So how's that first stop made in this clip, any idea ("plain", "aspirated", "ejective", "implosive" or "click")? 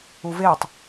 plain